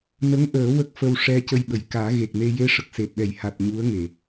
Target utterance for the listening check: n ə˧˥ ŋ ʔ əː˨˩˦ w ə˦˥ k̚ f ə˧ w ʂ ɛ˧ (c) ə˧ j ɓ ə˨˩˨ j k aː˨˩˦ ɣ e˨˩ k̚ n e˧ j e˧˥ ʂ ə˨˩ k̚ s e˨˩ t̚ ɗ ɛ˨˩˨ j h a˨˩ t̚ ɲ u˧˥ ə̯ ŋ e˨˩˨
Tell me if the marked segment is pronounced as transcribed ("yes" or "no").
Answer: yes